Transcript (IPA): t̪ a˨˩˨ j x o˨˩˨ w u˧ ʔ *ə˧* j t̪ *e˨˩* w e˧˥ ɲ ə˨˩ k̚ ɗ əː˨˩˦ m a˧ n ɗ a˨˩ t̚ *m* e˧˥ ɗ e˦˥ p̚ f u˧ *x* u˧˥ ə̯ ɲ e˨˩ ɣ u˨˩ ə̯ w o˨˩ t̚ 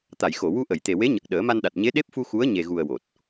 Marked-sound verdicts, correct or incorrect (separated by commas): incorrect, correct, incorrect, correct